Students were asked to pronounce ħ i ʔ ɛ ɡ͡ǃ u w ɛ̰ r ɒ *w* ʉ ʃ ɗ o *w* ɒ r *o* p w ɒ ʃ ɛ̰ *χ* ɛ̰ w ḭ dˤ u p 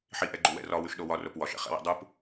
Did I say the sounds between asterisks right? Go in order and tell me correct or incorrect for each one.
correct, correct, correct, correct

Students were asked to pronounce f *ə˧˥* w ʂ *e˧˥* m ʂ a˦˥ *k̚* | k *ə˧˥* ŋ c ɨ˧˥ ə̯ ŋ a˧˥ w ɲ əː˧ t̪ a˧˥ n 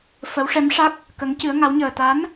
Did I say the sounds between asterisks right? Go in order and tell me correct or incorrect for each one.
correct, incorrect, correct, correct

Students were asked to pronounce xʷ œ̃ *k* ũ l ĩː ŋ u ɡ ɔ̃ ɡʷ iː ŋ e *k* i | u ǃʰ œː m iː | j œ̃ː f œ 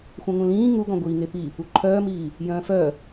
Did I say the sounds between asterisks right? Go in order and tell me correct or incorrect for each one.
incorrect, incorrect

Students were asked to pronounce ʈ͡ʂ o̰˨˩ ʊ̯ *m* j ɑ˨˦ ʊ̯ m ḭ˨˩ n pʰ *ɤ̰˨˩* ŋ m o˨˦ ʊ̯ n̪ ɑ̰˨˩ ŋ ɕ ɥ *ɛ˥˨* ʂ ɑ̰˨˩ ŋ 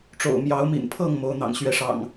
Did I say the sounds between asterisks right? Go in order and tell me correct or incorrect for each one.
correct, incorrect, incorrect

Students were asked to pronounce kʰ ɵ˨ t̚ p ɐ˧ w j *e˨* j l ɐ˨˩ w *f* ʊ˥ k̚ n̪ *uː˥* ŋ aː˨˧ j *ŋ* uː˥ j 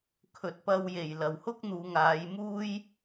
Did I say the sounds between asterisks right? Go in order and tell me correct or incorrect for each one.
incorrect, incorrect, incorrect, incorrect

